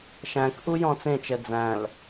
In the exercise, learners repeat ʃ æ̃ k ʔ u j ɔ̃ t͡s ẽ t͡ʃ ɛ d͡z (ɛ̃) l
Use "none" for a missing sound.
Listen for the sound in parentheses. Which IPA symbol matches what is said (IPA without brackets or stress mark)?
æ̃